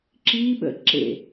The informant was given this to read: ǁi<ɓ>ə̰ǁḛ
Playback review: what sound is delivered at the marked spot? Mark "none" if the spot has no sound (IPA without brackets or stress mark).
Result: ɓ